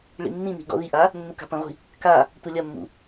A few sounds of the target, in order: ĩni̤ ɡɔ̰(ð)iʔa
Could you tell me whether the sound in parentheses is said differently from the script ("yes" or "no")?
no